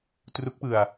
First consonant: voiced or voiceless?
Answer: voiceless